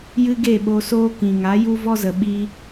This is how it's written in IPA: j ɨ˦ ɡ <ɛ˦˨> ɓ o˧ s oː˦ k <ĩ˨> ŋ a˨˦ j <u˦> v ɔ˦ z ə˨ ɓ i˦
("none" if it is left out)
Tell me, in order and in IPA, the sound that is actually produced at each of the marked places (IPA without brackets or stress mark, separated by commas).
e˦˨, ĩ˨, u˦